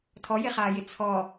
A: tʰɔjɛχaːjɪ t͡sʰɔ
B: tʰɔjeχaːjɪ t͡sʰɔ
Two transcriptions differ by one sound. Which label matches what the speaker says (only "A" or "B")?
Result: B